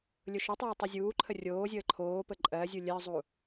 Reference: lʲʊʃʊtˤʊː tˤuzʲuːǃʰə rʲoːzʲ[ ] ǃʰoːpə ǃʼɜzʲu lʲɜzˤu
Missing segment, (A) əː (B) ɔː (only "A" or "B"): A